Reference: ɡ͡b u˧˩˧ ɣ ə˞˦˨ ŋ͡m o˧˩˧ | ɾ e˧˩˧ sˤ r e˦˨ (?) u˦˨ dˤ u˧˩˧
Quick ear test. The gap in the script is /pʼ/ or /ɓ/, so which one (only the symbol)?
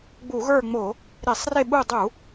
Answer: ɓ